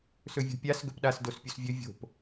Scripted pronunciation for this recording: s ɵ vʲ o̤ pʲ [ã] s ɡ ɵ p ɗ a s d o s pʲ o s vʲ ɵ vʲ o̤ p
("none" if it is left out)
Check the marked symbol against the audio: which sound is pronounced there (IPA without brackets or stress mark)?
a